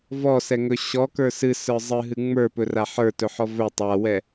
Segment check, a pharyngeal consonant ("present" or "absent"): present